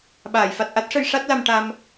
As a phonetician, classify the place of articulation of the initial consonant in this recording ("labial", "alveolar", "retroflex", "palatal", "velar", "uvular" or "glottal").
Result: labial